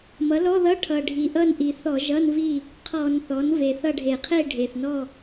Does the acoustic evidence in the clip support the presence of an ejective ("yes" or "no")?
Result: no